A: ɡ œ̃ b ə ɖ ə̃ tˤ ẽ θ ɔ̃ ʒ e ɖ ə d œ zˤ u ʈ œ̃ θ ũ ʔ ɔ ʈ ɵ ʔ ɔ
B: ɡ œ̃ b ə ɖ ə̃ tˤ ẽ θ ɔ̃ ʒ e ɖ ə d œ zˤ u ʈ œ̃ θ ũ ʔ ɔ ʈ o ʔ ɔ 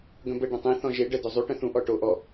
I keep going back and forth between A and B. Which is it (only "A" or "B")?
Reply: B